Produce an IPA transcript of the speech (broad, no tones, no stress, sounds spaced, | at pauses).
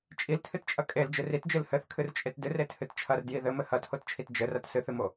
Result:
t͡ʃʼ i l tʰ ɨ t t͡ʃʼ ɐ kʼ e l d͡ʒ ɨ r i t d͡ʒ ɨ l h ɘ θ kʰ ɨ r t͡ʃʼ e t d ɨ r e tʰ ɨ t t͡ʃʰ ɐ r d j i ð ɘ m ɘ h ɐ tʰ o t t͡ʃʰ i t d͡ʒ ɘ r ɐ t s ɨ θ ɨ m o